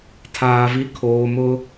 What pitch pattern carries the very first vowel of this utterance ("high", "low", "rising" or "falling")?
low